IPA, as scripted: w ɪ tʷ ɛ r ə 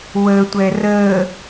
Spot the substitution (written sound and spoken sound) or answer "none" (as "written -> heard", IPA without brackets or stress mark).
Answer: ɪ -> ə